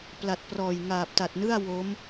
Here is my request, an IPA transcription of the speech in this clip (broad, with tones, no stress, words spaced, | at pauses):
pla˨˩t̚prɔː˨˩j ŋaː˨˩p̚ta˨˩t̚nɯ˥˩a̯ wo˦˥m